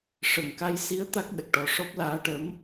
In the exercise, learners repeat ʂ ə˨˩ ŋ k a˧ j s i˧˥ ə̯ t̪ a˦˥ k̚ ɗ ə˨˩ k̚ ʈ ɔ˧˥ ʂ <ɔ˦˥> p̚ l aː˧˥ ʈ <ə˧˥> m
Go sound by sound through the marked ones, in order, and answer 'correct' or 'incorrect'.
correct, correct

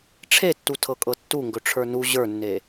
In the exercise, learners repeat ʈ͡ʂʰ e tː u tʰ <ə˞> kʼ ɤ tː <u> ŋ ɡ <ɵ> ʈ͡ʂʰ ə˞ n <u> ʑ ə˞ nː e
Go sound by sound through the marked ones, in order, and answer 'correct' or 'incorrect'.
incorrect: ɤ, correct, correct, correct

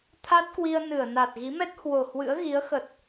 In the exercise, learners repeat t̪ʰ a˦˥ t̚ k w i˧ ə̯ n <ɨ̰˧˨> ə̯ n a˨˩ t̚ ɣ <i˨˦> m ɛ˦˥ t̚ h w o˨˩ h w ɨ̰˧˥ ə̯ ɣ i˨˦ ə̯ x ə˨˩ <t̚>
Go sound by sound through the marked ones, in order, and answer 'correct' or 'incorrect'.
incorrect: ɨ˧˩, correct, correct

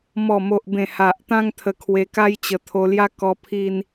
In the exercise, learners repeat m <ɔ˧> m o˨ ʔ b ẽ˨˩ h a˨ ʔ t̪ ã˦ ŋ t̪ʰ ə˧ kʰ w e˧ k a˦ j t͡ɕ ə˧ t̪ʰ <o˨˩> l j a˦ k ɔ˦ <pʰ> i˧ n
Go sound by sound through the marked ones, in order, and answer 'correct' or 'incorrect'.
incorrect: ɔ˨˩, incorrect: o˧, correct

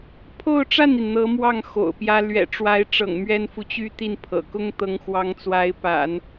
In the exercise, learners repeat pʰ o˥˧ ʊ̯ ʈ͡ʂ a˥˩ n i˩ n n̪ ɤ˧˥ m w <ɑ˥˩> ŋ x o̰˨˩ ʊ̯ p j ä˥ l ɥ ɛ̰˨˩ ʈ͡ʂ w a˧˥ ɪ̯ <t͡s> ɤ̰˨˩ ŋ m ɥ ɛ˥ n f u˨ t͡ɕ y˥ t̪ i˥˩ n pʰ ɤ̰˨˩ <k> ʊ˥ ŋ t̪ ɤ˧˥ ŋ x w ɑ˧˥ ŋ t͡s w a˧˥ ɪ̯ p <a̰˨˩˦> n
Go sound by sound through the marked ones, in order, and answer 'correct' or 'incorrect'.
correct, incorrect: ʈ͡ʂ, correct, correct

